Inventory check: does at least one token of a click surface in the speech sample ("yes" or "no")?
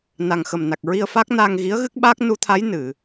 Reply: no